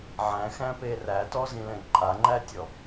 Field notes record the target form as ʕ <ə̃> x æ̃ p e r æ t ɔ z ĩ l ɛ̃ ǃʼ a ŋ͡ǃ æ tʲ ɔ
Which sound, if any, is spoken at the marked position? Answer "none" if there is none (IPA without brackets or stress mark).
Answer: æ̃